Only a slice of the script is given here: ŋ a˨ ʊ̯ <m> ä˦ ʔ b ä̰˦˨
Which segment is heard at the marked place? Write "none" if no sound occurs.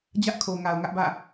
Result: ŋ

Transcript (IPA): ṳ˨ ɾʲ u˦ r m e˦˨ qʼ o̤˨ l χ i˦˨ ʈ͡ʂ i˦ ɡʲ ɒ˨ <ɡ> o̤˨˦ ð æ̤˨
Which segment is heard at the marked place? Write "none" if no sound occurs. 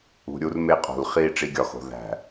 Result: x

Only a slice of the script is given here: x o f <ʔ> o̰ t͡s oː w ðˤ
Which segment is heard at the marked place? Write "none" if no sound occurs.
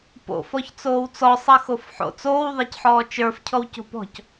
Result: ħ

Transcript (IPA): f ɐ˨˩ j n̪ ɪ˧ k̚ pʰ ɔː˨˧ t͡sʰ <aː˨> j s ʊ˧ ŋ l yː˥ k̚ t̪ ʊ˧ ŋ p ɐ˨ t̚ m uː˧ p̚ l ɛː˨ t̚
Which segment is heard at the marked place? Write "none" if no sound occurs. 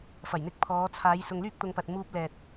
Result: aː˨˧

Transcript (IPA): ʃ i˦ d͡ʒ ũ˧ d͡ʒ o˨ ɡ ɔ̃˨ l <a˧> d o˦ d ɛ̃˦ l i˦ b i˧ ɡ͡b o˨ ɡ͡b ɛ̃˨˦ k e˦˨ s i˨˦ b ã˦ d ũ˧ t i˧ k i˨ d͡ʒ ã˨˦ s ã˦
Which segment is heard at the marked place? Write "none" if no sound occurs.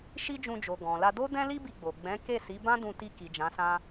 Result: a˧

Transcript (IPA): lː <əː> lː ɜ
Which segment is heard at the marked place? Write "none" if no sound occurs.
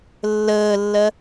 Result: əː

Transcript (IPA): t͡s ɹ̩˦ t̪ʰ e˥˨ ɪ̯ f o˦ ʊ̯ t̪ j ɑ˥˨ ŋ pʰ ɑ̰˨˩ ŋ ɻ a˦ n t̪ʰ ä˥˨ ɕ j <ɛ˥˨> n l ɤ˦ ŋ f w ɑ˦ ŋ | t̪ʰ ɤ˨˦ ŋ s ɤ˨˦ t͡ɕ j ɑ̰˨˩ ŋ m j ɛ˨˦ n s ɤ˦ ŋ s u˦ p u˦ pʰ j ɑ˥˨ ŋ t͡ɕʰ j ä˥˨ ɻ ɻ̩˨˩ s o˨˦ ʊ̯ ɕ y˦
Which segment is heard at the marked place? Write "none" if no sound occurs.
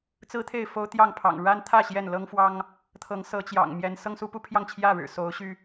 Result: ɛ˥˨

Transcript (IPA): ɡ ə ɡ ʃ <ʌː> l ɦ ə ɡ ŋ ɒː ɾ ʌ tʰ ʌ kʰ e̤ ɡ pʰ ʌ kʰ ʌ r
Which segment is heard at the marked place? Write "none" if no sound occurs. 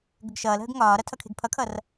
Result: ʌː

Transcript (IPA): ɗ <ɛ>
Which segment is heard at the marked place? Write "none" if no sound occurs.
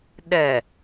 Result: ɛ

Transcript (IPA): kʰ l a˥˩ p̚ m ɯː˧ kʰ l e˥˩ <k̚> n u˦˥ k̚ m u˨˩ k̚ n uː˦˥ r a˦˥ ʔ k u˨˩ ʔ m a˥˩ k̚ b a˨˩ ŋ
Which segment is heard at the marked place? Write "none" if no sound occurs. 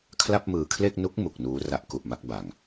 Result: k̚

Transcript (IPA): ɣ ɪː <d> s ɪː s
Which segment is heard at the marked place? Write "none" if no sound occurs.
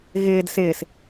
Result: d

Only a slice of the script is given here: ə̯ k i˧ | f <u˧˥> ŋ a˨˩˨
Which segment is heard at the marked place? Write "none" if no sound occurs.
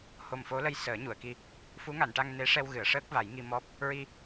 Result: u˧˥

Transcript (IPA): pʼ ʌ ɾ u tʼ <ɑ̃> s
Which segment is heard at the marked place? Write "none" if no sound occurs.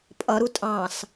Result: ɑ̃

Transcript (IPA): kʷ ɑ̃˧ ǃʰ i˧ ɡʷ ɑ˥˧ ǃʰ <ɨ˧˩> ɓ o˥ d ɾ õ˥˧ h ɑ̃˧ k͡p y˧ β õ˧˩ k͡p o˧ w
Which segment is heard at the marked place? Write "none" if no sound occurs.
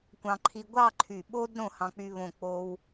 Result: y˧˩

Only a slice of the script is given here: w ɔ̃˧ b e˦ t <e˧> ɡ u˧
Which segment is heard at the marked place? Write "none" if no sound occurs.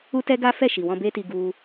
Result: i˧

